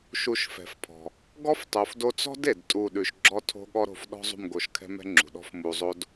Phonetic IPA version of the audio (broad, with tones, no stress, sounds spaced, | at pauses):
ʃ u˧ ʃ f ɛ̤˨ f pʰ ɔ̤˨ | ɡ ɔ˦ f tˤ o˨ f d o˧ t͡s ɔ̤˦ d e˨ d tʼ u˦˨ ɗ ʉ˧ ʃ ɡ͡ǁ ɔ˦ tʰ o̤˦ ɠ ɔ˦ ɾ o̤˧ f ɗ ɔ̤˦ zˤ ṳ˦˨ m ɡ o˧ ʃ kʰ ɛ̤˦ m ɛ̤˦ ŋ͡ǁ ṳ˨ ɗ ɔ̤˦ f m u˧ zˤ o˦ d